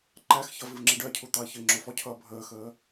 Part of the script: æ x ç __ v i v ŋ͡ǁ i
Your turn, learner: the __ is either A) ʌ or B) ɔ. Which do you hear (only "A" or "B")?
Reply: A